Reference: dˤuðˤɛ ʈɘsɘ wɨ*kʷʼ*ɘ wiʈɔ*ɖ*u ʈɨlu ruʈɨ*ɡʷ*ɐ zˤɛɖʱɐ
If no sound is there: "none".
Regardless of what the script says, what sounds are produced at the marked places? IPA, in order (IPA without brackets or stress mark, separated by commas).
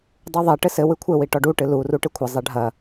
kʷʰ, ɖ, kʷʰ